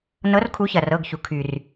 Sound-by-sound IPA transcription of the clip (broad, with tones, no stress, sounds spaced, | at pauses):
n ɤ˨˥ r kʰ u˨˥ ç ɐ˩ r ɤ˩˧˩ ɡ ç u˩ kʰ y˩ r